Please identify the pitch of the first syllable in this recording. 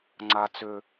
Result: low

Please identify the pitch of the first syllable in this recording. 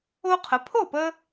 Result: high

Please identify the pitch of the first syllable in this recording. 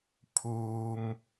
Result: low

